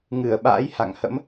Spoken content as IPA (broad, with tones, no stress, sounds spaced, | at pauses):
ŋ ɨ˧˩ ə̯ ɓ a̰ː˧˥ j h a̰˧˨ ŋ h ə̰˧˥ m